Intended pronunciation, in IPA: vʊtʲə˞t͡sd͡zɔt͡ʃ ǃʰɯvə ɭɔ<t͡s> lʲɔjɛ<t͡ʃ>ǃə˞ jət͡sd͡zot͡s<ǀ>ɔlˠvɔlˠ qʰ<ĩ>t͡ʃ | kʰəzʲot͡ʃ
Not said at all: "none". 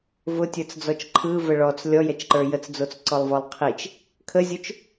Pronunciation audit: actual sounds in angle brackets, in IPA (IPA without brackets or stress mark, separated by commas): t͡s, t͡ʃ, ǀ, i